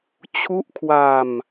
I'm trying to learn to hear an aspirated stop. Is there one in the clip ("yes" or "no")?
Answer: yes